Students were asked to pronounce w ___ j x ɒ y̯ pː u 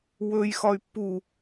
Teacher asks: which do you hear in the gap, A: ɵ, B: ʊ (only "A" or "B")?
A